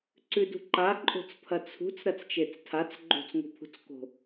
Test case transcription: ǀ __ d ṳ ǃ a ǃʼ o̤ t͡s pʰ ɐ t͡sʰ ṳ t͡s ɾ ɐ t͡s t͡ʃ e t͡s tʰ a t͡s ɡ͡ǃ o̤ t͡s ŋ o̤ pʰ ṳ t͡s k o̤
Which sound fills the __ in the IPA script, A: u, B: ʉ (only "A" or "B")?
B